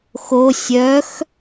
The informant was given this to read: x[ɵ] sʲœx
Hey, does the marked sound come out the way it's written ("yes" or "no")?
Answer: no